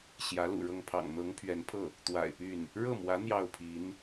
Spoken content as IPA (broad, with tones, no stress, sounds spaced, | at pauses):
ɕ j ä˧˥ l ṵ˨˩ ɻ ɤ˥˩ ŋ pʰ ɑ̰˨˩ ŋ n̪ ɤ˧˥ ŋ pʰ ɥ ɛ˧˥ n pʰ ɤ˥˩ | t̪ w a̰˨˩ ɪ̯ p y˥˩ n | ɻ ɤ˥˩ m w ä˧˥ n̪ j ɑ˥˩ ʊ̯ pʰ i˧˥ n